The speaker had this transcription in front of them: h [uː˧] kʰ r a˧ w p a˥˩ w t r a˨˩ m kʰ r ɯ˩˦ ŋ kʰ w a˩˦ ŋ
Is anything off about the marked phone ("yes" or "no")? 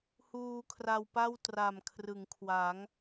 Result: no